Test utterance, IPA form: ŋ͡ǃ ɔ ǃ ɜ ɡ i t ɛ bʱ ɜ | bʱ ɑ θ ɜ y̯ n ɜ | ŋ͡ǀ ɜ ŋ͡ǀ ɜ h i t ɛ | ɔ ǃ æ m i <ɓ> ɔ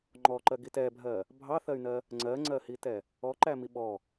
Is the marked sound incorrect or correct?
correct